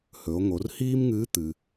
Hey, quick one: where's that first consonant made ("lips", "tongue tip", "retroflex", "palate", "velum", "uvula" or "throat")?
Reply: throat